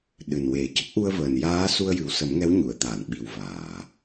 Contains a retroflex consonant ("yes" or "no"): no